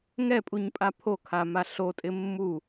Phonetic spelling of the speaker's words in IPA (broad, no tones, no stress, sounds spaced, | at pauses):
ŋ ɛ pʼ u ɲ pʼ a pʰ o kʰ a m a ɬ o tʼ ɪ mː u